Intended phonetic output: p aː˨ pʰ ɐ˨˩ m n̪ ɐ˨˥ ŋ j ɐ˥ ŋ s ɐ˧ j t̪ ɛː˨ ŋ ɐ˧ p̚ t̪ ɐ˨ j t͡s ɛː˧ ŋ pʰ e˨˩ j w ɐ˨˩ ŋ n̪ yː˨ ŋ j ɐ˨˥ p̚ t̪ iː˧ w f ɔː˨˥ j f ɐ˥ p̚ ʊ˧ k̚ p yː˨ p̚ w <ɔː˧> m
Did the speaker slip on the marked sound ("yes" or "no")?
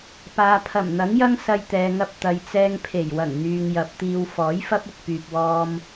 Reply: no